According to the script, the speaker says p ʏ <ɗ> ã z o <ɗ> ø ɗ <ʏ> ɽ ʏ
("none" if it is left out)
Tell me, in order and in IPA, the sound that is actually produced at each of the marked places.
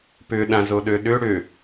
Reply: ɗ, ɗ, ʏ

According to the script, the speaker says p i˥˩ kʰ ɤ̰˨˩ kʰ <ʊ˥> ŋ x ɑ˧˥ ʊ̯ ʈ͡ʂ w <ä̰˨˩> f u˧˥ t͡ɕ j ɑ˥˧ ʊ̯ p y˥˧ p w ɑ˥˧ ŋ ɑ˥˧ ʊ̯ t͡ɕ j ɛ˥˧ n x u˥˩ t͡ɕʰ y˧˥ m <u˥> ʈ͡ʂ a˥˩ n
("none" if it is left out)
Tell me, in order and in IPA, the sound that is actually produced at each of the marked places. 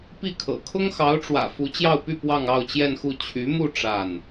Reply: ʊ˥, ä̰˨˩, u˥˧

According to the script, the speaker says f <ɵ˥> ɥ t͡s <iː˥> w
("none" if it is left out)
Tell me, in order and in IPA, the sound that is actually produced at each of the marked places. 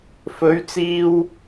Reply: ɵ˨˥, iː˧

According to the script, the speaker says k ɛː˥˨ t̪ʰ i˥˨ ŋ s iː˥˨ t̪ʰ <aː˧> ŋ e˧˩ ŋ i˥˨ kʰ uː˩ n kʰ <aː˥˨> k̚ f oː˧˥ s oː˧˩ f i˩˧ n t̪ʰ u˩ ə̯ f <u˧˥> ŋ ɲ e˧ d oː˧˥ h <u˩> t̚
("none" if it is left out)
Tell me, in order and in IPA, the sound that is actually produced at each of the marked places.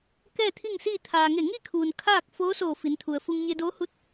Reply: aː˩, aː˥˨, u˧, u˧

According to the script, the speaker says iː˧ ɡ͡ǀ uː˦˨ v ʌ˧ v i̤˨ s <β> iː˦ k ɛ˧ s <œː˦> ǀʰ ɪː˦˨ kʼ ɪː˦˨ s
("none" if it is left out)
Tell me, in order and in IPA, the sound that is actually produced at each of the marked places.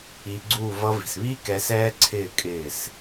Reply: β, ɛː˦

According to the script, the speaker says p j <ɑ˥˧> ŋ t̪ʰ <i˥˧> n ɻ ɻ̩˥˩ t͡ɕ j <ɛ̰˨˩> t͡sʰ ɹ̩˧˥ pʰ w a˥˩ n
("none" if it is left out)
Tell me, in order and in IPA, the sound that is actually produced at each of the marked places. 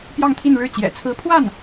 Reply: ɑ˥˧, i˥˧, ɛ̰˨˩

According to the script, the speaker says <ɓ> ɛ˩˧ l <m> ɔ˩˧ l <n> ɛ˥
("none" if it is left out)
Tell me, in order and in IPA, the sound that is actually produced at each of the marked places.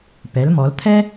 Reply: p, m, t̪ʰ

